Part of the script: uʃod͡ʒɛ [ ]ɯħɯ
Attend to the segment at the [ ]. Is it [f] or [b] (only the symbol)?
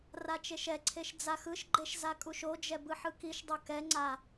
b